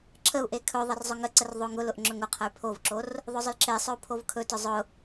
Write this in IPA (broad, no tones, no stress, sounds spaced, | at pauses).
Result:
ǁʰ ə u̯ ʔ e kʰ ɵ ðˤ ə r zˤ ʊ ŋ ə ǀ ə r ðˤ o ŋ ʊ l ʊ ʔ ŋ͡ǁ ɵ ŋ ʊ qʰ ə y̯ pʰ o v ǁ o r | ðˤ ʊ zˤ ʊ l ǁ e sˤ ɵ u̯ pʰ o v kʰ ɵ t ʊ zˤ ʊ